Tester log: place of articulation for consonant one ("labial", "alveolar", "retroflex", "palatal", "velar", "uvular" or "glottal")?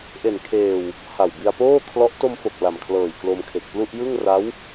glottal